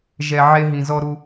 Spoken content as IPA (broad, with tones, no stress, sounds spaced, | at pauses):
ʒ ɛ˨ ʕ e˦ ɦ ĩ˨ z ɔ˦ ɾ u˦